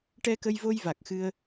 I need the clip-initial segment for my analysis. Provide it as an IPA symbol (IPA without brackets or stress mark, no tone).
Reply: ʈ